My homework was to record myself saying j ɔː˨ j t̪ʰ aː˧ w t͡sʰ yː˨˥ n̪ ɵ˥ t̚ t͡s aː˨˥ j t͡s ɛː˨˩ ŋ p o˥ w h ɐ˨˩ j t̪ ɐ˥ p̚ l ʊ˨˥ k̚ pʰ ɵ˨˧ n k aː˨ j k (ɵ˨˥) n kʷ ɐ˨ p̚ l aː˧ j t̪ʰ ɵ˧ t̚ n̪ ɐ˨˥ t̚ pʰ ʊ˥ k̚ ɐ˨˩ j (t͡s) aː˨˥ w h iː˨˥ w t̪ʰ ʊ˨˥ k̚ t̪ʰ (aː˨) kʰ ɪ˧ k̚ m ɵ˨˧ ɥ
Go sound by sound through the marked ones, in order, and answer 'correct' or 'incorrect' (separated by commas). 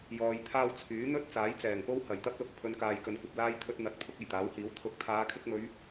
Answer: incorrect, incorrect, incorrect